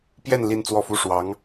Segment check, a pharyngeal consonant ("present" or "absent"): absent